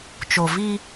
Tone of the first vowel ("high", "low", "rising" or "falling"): low